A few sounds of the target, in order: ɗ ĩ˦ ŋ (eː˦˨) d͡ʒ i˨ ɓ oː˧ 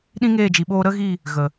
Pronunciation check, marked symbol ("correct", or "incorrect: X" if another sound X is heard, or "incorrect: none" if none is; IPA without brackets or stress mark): correct